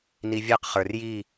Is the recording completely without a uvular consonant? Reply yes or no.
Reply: no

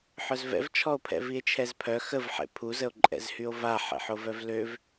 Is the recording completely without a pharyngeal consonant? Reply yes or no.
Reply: no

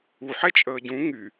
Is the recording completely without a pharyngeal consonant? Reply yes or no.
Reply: no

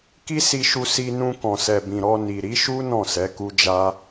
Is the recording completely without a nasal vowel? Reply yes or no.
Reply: no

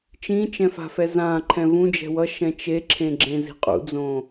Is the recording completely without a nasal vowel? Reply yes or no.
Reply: no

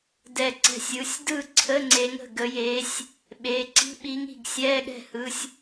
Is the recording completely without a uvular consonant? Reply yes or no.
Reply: yes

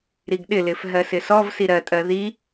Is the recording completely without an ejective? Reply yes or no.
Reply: no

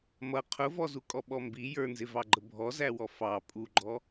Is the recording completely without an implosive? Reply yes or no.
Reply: no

